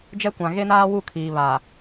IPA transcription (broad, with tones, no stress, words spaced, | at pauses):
d͡ʒɛ˦kʷã˨ ɣe˦naː˦wu˦˨ kʰiː˨βa˨